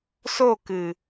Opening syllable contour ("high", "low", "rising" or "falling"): falling